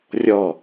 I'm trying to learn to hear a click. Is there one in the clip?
no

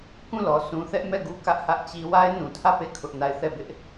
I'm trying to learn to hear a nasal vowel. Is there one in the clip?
yes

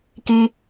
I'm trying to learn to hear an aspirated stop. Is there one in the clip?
no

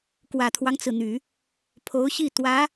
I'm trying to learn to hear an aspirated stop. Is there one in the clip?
yes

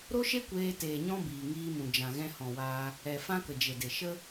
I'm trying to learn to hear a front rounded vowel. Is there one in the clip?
no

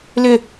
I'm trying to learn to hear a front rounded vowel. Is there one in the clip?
yes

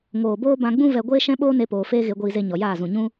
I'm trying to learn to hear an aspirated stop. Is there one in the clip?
no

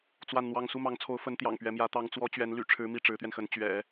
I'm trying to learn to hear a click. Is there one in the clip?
no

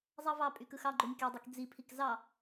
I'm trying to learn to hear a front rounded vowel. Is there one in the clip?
yes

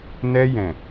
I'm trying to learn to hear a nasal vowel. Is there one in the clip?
yes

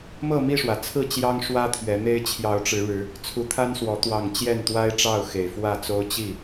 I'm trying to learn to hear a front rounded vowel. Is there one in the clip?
no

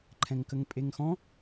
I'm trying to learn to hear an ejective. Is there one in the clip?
yes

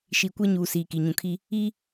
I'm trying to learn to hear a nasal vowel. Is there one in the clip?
yes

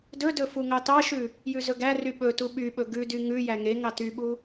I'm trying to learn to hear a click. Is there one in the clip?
no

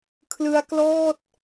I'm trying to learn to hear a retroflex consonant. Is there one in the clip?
no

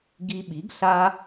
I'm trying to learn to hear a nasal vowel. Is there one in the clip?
no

